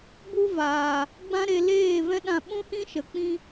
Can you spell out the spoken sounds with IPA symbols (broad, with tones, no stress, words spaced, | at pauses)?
bu˦ vaː˨ | ɡ͡bã˦ɾe˧leː˦˨vɛ̃˦ ɗã˧ɓũ˦hĩ˦ ʃə˨k͡pĩ˦